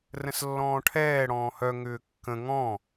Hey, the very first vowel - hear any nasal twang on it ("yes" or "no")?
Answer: yes